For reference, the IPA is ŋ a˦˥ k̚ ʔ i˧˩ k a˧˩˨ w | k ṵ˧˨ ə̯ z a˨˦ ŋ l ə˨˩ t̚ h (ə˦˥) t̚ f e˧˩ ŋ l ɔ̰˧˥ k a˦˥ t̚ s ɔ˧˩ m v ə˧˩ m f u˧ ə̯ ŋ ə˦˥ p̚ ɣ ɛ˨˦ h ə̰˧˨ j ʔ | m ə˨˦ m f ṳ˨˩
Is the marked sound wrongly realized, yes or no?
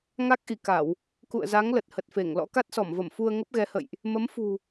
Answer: yes